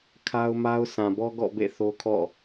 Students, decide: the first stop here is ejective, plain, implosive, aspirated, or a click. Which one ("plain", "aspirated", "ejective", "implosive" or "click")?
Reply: aspirated